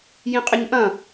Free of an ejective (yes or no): no